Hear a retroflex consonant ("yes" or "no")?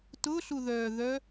no